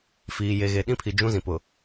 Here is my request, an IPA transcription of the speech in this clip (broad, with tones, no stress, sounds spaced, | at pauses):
f iː˨ j e˨ ɣ e˨ ɗ ĩ˦ pʰ i˨ d͡ʒ ũ˦ z ĩ˨ p ʊ˨